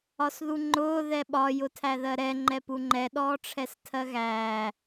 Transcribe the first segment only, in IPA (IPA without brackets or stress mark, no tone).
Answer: ɒ